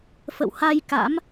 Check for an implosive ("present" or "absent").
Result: absent